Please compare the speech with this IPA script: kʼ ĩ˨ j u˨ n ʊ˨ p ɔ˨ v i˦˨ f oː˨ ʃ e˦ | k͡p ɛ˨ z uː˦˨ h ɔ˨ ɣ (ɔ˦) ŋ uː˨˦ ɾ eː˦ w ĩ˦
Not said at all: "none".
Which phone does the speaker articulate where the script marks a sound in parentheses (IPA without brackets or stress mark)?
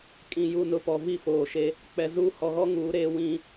ɔ˦